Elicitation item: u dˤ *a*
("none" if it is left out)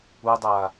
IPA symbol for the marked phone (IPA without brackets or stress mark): aː